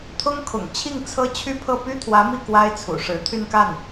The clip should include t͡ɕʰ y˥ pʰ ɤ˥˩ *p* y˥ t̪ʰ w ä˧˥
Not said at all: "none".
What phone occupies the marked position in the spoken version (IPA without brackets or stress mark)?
p